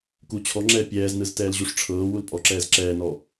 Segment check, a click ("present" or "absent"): present